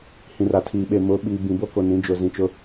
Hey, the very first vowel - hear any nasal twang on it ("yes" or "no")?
yes